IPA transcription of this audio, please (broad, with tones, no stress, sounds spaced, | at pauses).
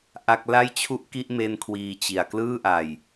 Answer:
ʔ a˥˩ k̚ l a˥˩ j t͡ɕʰ u˥˩ ʔ k i˥˩ ʔ m e˧ n kʰ w iː˧ t͡ɕ i˨˩ a̯ k l ɯː˥˩ ʔ a˨˩ j